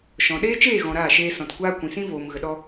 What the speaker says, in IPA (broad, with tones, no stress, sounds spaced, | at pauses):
ʃ ɔ̃˨ ɗ eː˦ t͡ʃ eː˦˨ ɣ ɔ̃˨ ɾ aː˦˨ ʃ eː˧ s ɔ̃˨ t kʷ aː˦ kʷ ĩ˨ s ĩ˦ v oː˨ m ɣ ə˨ ɗ ɔ˧